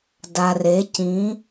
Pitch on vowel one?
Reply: low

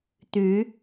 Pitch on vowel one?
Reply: rising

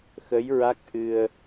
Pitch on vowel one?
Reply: rising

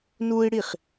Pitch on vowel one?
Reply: high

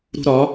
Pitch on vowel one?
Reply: high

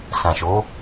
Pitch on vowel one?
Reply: low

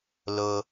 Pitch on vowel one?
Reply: high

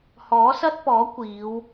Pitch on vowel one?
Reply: rising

